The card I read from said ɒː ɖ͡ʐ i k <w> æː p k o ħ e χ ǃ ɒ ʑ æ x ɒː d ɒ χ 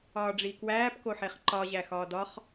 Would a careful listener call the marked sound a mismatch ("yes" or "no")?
no